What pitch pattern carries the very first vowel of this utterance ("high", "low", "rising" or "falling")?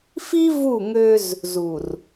high